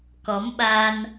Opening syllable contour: rising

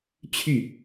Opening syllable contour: falling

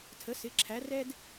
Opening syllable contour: rising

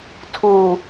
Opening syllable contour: low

